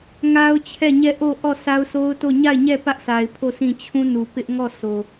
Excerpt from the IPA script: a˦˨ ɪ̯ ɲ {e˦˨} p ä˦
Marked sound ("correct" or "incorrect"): incorrect